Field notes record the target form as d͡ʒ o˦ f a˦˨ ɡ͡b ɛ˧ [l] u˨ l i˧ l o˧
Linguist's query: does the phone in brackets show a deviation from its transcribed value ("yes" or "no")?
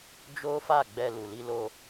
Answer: no